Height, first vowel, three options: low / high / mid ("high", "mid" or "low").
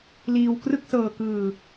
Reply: high